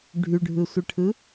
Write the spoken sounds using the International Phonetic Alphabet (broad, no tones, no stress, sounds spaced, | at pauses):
ɖʱ y ɖʱ ɯ sʷ ɯ ʈʰ ɯ